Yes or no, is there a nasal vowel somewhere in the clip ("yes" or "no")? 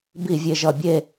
no